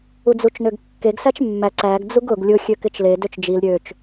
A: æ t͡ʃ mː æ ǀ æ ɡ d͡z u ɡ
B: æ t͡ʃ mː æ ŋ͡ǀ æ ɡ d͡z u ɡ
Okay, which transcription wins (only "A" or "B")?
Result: A